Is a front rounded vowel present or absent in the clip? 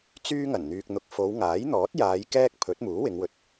present